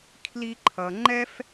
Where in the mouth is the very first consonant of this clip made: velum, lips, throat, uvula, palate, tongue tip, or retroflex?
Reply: velum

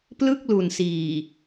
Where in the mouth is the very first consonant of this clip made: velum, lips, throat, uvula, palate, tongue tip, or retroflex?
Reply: lips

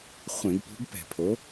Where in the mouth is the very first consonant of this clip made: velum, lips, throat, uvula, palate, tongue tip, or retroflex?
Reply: uvula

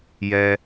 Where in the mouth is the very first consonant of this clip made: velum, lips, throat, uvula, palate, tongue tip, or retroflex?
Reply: palate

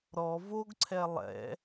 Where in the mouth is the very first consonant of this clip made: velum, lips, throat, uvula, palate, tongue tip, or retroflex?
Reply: tongue tip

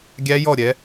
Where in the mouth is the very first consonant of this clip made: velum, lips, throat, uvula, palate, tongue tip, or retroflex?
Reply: velum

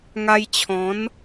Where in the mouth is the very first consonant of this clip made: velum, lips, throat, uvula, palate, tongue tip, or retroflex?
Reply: velum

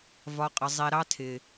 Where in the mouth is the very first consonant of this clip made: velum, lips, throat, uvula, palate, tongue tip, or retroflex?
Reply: lips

